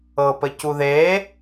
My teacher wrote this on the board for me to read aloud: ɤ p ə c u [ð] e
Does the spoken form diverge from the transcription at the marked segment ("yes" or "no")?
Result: no